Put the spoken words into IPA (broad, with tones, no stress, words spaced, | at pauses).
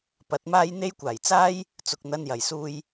pɐ˨˥t̚maː˥j n̪e˥jkʷaː˨˩j t͡saː˥j | t͡sʊ˨k̚n̪ɐ˧njɐ˨˩j suː˧j